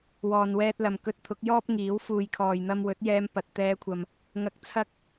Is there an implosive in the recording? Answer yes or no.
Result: no